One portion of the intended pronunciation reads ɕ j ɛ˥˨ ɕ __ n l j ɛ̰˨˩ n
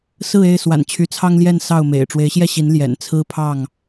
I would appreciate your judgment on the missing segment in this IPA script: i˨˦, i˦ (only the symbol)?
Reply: i˨˦